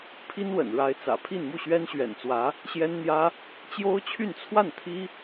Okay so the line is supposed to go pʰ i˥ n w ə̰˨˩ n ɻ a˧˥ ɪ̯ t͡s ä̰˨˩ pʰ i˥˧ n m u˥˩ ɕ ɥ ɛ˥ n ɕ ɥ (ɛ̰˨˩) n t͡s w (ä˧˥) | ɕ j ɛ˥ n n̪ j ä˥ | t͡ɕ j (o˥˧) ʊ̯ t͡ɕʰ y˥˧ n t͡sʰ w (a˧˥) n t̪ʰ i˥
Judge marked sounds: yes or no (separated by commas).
yes, yes, no, no